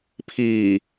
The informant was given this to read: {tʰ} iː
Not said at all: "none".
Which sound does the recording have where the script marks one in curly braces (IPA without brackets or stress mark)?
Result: pʰ